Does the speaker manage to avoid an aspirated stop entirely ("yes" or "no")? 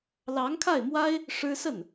no